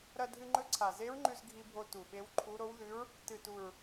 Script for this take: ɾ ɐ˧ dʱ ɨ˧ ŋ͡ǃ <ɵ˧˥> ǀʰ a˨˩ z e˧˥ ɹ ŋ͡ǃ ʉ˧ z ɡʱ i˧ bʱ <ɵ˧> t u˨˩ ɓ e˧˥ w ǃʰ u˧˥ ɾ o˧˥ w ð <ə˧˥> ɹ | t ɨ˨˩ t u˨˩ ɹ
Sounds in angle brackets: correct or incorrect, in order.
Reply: correct, incorrect: o˧, incorrect: ʉ˧˥

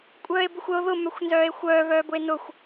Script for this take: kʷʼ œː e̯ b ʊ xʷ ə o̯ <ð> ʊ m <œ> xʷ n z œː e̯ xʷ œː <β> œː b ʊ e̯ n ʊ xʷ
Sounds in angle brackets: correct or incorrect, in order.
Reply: correct, correct, correct

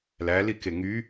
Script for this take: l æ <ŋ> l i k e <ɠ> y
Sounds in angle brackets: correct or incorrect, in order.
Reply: incorrect: none, incorrect: ŋ

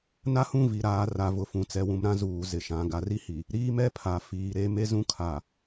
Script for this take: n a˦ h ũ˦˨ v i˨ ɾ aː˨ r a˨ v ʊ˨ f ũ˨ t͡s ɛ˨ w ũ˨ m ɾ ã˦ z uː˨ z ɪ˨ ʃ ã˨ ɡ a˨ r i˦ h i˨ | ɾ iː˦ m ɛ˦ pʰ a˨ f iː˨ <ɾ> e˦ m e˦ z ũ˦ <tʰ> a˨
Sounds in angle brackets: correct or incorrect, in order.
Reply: correct, incorrect: kʰ

